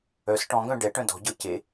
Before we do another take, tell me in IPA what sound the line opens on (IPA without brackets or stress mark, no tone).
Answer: œ